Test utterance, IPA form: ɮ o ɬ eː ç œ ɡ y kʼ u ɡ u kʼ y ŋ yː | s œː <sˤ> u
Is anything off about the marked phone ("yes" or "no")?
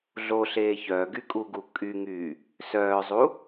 yes